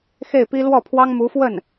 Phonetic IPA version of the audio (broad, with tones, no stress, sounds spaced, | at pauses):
x e˥˩ ɪ̯ p i˥ l w ɔ˥˩ pʰ w ɑ˥ ŋ m u˧˥ f w ə˥˩ n